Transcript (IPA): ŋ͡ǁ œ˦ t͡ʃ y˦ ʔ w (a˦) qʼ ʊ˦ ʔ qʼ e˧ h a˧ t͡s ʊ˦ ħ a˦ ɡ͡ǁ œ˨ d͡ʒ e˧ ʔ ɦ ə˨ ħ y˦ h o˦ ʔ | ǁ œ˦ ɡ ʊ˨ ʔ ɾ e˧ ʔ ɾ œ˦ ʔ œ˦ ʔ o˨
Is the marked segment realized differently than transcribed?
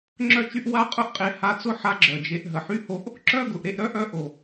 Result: no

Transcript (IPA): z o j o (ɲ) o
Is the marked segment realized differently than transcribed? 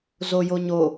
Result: no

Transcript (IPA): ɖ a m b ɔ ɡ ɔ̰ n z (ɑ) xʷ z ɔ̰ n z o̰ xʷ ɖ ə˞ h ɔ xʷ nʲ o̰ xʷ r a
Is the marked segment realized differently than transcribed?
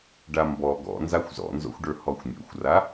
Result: yes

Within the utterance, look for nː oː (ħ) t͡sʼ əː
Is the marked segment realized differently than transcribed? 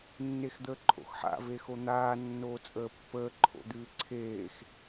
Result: yes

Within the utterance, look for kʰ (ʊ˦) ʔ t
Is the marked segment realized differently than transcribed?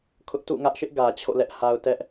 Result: no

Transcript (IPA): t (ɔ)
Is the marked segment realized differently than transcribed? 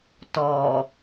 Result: no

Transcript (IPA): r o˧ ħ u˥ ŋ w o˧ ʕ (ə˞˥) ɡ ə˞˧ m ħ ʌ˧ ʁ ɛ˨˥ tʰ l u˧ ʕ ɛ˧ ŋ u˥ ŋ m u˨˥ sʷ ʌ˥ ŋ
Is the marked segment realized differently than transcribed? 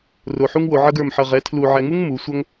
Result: yes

